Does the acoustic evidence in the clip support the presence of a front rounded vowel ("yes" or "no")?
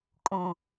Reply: no